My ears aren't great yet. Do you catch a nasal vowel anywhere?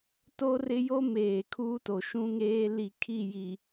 yes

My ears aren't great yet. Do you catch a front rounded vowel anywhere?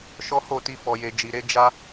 no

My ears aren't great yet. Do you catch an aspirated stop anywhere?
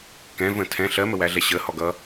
yes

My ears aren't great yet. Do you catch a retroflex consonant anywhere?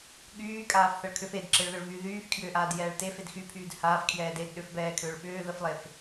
yes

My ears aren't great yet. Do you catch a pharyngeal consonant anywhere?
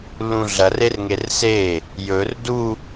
no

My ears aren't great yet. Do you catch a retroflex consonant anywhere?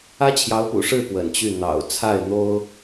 yes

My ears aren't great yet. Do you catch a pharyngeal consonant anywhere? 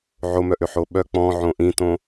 yes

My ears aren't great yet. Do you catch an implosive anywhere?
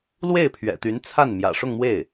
no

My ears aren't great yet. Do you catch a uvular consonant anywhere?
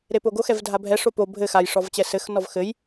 no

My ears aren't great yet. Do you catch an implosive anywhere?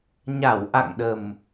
yes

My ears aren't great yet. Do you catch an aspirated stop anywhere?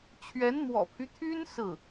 yes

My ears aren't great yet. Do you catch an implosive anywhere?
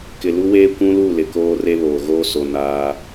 no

